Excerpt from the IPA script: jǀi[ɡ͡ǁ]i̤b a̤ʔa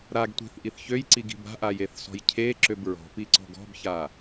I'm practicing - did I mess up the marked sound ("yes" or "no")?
yes